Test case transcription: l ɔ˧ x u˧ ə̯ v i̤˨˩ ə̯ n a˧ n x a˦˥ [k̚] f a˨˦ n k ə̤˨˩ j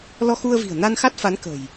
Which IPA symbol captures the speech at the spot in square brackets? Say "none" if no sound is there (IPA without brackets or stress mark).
t̚